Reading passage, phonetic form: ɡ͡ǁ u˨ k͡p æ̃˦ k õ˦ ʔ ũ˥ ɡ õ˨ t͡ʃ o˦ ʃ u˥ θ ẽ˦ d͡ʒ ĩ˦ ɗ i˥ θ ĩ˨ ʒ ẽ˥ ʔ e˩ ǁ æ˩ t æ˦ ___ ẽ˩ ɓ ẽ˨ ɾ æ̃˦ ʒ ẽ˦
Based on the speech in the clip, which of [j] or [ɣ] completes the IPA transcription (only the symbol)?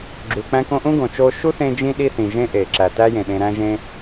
j